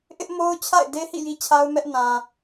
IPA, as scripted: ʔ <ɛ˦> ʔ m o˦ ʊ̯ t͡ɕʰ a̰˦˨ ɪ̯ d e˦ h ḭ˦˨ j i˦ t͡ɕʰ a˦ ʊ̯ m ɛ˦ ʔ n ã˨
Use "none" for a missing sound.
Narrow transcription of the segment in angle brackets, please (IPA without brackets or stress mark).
ɪ˦